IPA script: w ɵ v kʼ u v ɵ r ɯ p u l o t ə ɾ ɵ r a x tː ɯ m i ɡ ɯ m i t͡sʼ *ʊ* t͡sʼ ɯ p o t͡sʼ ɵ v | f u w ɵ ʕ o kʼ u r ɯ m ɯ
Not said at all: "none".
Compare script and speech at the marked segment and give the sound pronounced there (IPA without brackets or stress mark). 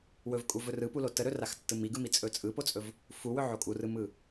ɵ